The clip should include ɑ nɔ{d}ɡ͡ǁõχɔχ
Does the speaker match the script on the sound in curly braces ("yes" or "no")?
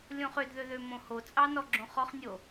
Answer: no